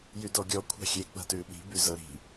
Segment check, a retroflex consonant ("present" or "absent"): absent